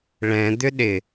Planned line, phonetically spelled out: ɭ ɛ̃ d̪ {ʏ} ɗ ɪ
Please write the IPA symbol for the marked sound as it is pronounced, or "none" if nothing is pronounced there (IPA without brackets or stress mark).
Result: ʏ